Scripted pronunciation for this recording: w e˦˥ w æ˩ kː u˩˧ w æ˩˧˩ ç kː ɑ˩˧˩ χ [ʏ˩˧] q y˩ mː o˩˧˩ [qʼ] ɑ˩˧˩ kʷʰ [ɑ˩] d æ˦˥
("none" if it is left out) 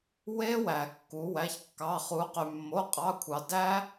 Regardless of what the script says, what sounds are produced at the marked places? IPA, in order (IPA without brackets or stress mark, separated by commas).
u˩˧, qʼ, ɑ˩